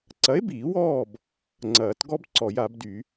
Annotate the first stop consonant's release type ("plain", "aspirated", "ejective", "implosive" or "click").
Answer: click